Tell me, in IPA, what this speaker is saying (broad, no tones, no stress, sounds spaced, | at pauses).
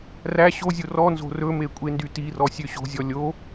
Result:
r æ ɕ o zʲ o r ɔ n z o̤ r ɵ m e kʷʼ e n d y t i r ɔ sʲ ø ɕ o̤ zʲ ɔ lʲ o